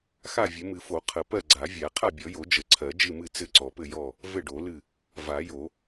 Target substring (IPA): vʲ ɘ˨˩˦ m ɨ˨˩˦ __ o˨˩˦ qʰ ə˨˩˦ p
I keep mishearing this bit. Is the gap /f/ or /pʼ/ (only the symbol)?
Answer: f